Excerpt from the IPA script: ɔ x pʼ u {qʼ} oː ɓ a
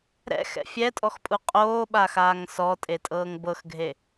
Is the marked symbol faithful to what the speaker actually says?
yes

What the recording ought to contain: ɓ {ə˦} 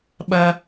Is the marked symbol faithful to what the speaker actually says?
no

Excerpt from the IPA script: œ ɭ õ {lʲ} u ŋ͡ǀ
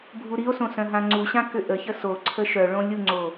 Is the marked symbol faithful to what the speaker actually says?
yes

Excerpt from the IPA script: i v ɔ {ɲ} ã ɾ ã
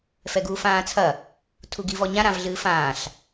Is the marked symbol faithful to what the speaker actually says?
yes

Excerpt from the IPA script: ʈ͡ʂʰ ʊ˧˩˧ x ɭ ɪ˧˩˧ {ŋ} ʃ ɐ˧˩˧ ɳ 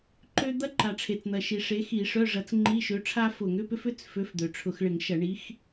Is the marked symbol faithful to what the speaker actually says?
yes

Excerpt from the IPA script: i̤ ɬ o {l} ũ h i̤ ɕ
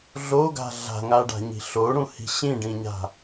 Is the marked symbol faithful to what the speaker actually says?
no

